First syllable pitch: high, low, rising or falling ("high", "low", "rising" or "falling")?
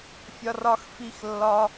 high